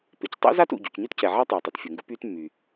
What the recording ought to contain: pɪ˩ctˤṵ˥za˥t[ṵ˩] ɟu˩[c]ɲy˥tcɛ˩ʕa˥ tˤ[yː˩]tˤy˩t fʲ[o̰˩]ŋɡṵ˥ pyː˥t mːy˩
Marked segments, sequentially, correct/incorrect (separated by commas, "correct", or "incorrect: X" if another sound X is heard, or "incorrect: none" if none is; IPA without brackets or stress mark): correct, correct, correct, incorrect: o˩